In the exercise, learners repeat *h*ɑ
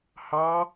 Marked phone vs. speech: correct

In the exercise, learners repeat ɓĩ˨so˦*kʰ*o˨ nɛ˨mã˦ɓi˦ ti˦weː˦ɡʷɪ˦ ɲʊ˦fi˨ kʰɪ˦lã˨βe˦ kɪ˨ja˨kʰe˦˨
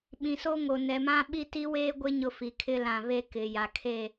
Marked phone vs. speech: incorrect: ŋ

